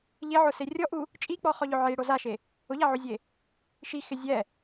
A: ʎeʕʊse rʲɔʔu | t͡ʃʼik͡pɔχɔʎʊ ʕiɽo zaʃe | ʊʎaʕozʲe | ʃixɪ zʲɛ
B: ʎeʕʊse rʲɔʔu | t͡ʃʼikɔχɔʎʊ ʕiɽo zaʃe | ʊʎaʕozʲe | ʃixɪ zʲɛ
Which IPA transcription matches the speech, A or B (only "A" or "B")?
A